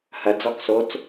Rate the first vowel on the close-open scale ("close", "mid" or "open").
open